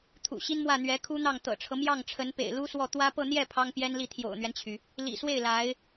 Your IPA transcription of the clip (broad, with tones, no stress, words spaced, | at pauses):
t̪ʰṵ˨˩ɕi˥nmwä˥˩ n̪ɥɛ˧˥kʰu˥n̪ɑ˥˩ŋ t̪ɤ̰˨˩ʈ͡ʂʰɤ˦ mjɑ˥˩ŋʈ͡ʂʰə˧˥n pḛ˨˩ɪ̯lu˥swɔ˥˩ t̪wä˥ pɤ˥˧n̪jɛ˥˩ pʰɑ˥ŋpjɛ˥nli˥˩ t̪ʰjo̰˨˩ʊ̯n̪ɥɛ˦nt͡ɕʰy˩ | lḭ˨˩swe˥˩ɪ̯ la˧˥ɪ̯